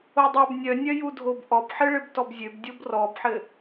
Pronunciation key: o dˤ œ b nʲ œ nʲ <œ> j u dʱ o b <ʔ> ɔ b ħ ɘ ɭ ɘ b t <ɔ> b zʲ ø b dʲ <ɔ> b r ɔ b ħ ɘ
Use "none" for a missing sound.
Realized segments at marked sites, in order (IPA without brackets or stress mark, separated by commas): œ, ʔ, ɔ, o